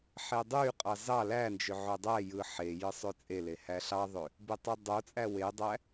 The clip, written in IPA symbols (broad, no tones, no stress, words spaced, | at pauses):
ħedˤyqʼɑ zɑ lænd͡ʒø ʕødˤæjɯ ħe jɯsˤøt͡sʼele hæɬɑðˤø | bitˤɯdˤot͡sʼæ wedˤæ